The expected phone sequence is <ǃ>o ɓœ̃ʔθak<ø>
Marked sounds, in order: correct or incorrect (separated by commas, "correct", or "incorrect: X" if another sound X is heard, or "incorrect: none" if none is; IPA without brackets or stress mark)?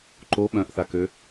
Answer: correct, correct